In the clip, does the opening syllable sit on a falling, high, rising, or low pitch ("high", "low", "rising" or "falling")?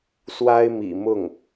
high